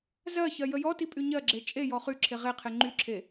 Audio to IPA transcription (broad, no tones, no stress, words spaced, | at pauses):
zɜçɜ jəjɔti pʼyɲɜɡ͡ǁe t͡ʃʼe jɔχyǁʰe ʁeqʰe ŋ͡ǃyǁʰe